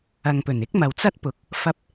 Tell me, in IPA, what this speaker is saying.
ɐ˨ ŋ p ɵ˨˩ n ɪ˥ k̚ m ɐ˨ w t͡s ɐ˥ t̚ p ʊ˨ k̚ | f ɐ˧ p̚

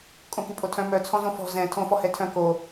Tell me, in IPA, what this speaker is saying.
kʼ õ k y pʼ o tʰ œ̃ m œ t͡sʰ ɔ̃ z õ f ɔ̤ z ɛ̃ tʰ õ f ɔ h ɛ tʰ œ̃ k o

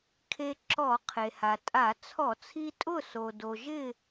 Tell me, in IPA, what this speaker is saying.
kʰ e˧ ǁ ɔ˧˩˧ qʰ e˩ h a˩ tʼ a˧˩˧ t͡sʰ ɔ˧˩˧ t͡sʰ i˧ tʼ ʊ˥˨ s o˩ d o˩ ʒ ɪ˥˨

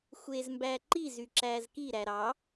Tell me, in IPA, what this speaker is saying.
xʷ eː z m b æː ǃ i z y ǁ æː z k i ɾ æ ɾ ɑ

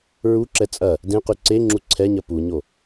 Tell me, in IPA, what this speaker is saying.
ɹ u ǁ ɛ t͡sʼ ɐ | d ẽ q ʉ ǀ e ŋ͡ǁ u ǀʰ ɛ ɲ ɐ p u ɲ o

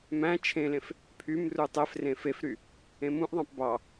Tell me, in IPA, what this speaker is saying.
m æ̃ t͡ʃʰ ẽ l ẽ f | pʰ y m r u tˤ ɛ f r ẽ f e f ɾ y | ẽ m ũ ʔ ðˤ ɑ̃ p b ɑ

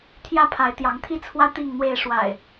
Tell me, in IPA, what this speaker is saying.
t̪ʰ j ä˦ pʰ a˨˦ ɪ̯ t̪ j ɑ˨˦ ŋ t̪ʰ i˦ t͡sʰ w ä˦ t̪ i˥˨ ŋ n̪ w e˥˨ ɪ̯ ʂ w a̰˨˩ ɪ̯

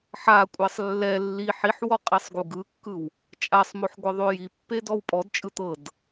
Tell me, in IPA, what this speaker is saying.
ħ a kʷʼ ɛ sˤ lː ɛ lː i ħ i ħ w ɔ qʼ i sˤ ɡ u ɡ ɯ kː ɯ w | t͡ʃʼ a sˤ m o ħ ɡʷ ɤ ðˤ o j i pː e d ɔ w pʼ ɔ d t͡ʃʼ ɯ t̪ ɤ d

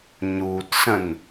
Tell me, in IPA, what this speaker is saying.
ɲ uː t s ə̃ n

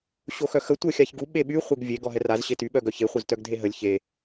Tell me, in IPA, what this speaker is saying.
ɕ o x œ x ə tʷ œ xʲ a ç ɡ u ɓ e ɓ y χʷ e ɡ vʲ e ɡ ɔ ɦ ɛ r a z ɕ e t y ɓ œ ɡ œ ç e χʷ œ z t œ ɡ dʱ e ɦ ə lʲ ç e

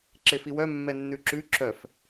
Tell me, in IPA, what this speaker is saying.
ǁ e f i w œ mː ɛ nː ʉ ǁ ʉ ǁ œ f

